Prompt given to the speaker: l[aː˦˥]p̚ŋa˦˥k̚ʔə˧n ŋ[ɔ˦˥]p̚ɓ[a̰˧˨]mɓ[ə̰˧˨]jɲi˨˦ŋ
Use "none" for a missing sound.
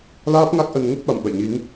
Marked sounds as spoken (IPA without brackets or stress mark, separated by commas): aː˦˥, ə˦˥, a̰˧˨, ə̰˧˨